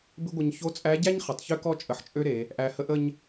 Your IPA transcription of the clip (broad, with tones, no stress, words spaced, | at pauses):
bɪ˥ɡʷə˧ɲ ço˧˥t͡sʼæ˧˥ɟæ˥ɲ χə˩˧tˤçø˥kɔ˥ t͡ʃʼə˧ħt͡ʃʼø˥ɾe˩˧ | ʔæ˧hə˥ʔə˥ɲ